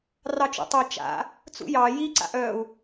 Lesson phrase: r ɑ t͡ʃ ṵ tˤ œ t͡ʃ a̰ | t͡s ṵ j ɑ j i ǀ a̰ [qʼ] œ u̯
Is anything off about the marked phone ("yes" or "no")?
yes